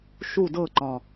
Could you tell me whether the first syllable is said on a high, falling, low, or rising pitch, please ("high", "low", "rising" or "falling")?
falling